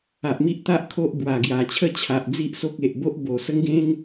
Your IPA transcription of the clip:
a˨ ʔ m i˦ ʔ t̪ a˦ ʔ kʰ o˦ ʔ b w a˨˩ ɡ j a˨˩ t͡ɕʰ ə˥˧ t͡ɕʰ a˨ ʔ d͡z i˦ ʔ s o˦ k̚ e˨ ʔ b o˦ ʔ b o˨˩ s ə˦ ŋ ɡ ẽ˦ ŋ

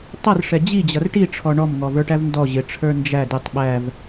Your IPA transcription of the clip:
tˤ ʌ r ʂ ɛ d͡ʑ i d͡ʑ ʌ r ʈ i ʈ͡ʂʰ ɔ ɳ ɔ m ŋ ɔ v ə˞ ʈ æ v n d ɔ ʑ ɪ ʈ͡ʂʰ ə˞ n d͡ʒ æ d ɪ tˤ ɓ æ v

